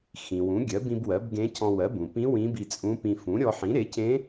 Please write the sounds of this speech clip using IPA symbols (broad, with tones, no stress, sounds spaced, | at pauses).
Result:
x ĩ˩ w ũ˩˥ ɡʲ ɜ˩˥ b ĩ˧ b w ɜ˩˥ b ɡ ẽ˧˥ cʰ ɔ̃˧ w ɜ˩˥ b ũ˩ p ĩ˧˥ w ĩ˧˥ b i˧ t͡sʼ ũ˧˥ p ĩ˧ f ũ˩˥ ɾʲ ɔ˧ ħ ĩ˩˥ ɾ e˩˥ cʰ ẽ˧˥